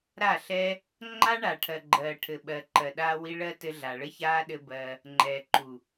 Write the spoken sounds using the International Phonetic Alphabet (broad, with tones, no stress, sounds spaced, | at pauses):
ɾ a˦˨ ɬ ɛ˦ | ŋ͡ǃ a˦ ɳ a˨ ʈʰ ɜ˨ ɡ͡ǃ ɜː˨ ʈʰ ɘ˨ ɓ ɜ˨ ǃ ɜ˨ ɗ aː˧ w i˧ ɭ ɜ˦ t ɘ˧ ɮ a˨ ɭ ɘ˦ ç aː˦ ɗ ɘ˧ b ɜ˧ | ŋ͡ǃ ɛː˨ ǃ u˨